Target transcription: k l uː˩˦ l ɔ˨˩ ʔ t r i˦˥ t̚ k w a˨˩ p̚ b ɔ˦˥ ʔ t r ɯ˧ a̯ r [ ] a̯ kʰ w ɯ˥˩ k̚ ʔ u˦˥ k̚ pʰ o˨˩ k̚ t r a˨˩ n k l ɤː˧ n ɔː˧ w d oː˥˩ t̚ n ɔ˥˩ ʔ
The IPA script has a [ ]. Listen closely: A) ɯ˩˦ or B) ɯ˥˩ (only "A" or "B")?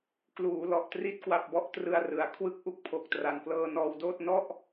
A